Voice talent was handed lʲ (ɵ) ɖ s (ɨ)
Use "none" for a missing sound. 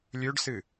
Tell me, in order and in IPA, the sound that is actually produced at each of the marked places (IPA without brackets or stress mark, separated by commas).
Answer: ɵ, ɨ